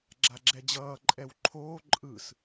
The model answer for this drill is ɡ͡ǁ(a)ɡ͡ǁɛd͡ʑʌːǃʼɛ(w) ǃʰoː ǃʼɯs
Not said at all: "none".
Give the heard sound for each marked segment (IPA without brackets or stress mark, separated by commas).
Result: a, w